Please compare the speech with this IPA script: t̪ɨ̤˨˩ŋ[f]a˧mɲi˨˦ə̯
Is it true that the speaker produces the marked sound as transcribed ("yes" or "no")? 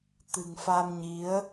yes